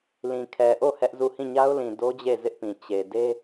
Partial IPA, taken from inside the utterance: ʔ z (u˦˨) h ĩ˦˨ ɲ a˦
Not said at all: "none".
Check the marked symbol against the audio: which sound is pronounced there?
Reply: u˦˨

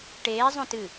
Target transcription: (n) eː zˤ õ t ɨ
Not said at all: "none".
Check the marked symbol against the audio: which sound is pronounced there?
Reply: ʈ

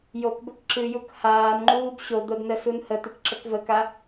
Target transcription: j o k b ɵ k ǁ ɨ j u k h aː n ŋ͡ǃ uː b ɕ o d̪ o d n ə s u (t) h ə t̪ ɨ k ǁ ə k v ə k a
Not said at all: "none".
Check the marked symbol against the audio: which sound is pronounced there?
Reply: n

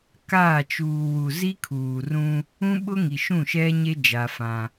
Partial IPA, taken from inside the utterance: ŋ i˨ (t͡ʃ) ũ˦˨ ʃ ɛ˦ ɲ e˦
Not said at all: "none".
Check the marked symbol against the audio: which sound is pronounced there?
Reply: ʃ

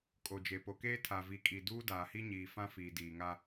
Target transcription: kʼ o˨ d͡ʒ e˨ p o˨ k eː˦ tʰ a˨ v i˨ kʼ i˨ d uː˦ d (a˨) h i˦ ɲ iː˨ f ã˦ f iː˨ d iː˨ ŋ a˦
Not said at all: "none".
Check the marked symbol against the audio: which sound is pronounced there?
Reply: aː˨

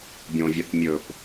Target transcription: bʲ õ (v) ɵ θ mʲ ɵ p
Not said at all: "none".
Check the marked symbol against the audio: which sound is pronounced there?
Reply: vʲ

